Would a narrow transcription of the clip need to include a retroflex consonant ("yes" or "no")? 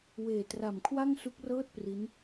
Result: no